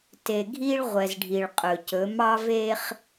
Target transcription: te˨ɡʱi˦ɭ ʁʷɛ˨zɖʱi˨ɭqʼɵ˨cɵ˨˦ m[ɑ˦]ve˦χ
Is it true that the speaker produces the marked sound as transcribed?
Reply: yes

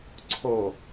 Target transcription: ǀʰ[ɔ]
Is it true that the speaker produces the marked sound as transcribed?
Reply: no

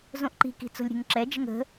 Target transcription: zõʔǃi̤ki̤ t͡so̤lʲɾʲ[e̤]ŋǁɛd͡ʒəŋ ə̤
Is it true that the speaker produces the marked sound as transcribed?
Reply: yes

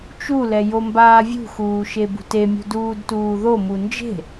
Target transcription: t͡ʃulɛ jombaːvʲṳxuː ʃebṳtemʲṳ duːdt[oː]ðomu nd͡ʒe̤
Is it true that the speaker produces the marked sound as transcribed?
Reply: no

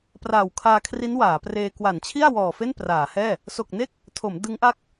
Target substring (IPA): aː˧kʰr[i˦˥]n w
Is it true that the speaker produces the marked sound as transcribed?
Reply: yes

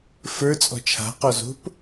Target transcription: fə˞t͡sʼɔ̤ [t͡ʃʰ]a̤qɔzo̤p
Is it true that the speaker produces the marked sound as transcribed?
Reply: yes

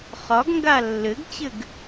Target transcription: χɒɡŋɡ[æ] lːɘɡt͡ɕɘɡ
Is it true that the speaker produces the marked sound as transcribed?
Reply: no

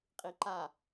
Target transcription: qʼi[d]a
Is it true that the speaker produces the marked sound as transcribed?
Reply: no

